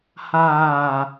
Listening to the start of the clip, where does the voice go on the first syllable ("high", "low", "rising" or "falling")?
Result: low